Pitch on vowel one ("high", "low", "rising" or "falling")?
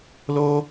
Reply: high